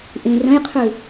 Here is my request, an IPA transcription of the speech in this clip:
ʔ ĩ r ə̃ j qʰ ʉ

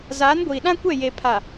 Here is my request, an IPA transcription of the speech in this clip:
z aː˨˦ n ɡʷ iː˨ ɗ ã˦ kʷ ɛ˦˨ j e˨ pʰ a˨

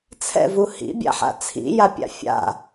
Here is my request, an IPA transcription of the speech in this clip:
t͡sʰ ɛ̰ v u h ḭ bʲ a̰ ħ a̰ t͡sʰ ḭ j a pʲ a̰ fʲ a̰

